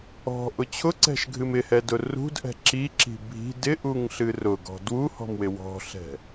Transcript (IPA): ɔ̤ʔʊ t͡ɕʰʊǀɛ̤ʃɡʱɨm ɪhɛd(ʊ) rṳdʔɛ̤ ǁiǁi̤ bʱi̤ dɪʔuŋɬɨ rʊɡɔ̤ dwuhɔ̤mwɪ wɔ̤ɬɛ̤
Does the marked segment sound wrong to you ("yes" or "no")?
no